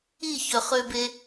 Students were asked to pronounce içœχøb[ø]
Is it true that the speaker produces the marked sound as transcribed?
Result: no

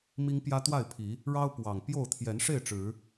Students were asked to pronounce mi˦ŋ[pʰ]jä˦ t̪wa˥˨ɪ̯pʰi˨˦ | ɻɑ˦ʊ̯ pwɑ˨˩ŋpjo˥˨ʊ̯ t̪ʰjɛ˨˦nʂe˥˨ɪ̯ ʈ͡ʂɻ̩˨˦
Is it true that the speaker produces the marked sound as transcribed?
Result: no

